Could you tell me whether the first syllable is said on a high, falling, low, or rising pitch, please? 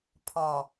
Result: low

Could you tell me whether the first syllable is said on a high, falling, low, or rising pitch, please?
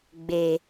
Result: low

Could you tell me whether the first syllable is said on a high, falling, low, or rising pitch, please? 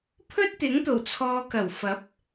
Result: high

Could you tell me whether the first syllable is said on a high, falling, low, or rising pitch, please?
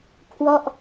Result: falling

